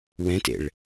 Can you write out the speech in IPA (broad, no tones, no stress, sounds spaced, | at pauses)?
w ɛ̃ t ḛ ɭ